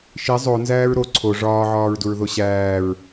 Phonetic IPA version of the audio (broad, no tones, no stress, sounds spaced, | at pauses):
ʃ i zˤ o n z æː ɹ ɾ o ǀʰ o ʐ ɒː ʕ ɒː ɹ d u ɹ ð o ɕ æː ɹ